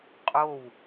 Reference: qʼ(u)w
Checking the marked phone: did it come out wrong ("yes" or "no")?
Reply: yes